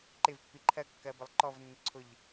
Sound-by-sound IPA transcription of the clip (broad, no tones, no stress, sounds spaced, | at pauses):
ǃ ɪ v pː i ǃʰ ɜ kː ɜ b ə lˠ ǃ ɔ v nː ə ǀʰ ʊ ʎ